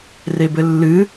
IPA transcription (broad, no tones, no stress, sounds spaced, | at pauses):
r e b ɘ lː ɨ